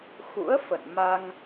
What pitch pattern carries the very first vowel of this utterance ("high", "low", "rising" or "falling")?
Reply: rising